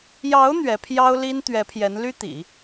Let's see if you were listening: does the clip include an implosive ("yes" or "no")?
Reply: no